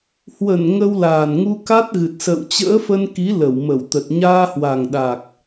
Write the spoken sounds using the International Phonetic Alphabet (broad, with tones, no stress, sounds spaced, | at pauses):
h w ə˧˩ n ŋ ə˧ w l aː˨˩ n ŋ u˧ k a˦˥ t̚ ɣ ɨ˨˩ t̚ s ə̰ː˧˨ w t͡ɕ ə̰ː˧˥ f ə˧ n k i˨˦ l ə˧˩ w m ə˧˩ w t̪ ə˨˩ t̚ ɲ aː˧ h w a˨˩ ŋ ɗ a˨˩ k̚